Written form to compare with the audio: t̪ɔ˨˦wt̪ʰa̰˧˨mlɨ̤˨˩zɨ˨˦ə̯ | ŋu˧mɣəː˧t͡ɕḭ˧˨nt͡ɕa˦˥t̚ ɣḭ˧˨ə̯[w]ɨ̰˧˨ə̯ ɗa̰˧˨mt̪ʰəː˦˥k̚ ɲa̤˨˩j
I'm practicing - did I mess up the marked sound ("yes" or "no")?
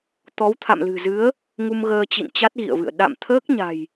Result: yes